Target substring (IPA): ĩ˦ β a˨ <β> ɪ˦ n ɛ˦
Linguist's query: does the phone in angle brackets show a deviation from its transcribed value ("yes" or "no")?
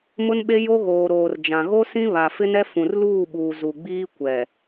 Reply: yes